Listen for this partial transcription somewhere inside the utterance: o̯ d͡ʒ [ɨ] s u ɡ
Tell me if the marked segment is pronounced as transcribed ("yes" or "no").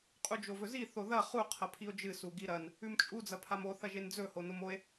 yes